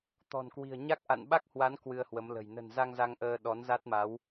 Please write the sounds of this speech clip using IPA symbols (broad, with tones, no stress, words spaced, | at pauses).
t̪ɔ̤˨˩nkwi̤˨˩ə̯ɲa˦˥k̚ ʔa̰˧˨nɓa˦˥k̚hwa˨˦n kwɨ˧ə̯hwə˨˦mlə̤˨˩j nə̤˨˩nza˧ŋ za˧ŋʔəː˧ ɗɔ˨˦nza˦˥t̚ma˨˦w